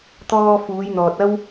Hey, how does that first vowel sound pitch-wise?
high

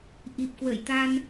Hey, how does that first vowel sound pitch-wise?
low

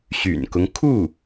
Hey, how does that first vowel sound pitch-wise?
low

